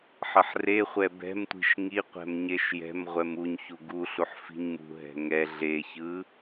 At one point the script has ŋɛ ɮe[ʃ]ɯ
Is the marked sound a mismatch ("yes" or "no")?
yes